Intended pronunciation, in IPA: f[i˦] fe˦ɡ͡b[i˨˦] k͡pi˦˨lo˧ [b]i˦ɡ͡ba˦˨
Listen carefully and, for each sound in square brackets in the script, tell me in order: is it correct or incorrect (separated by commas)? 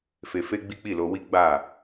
incorrect, incorrect, incorrect